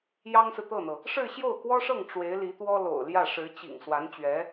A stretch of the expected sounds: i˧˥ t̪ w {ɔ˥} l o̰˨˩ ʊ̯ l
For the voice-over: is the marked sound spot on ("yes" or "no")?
yes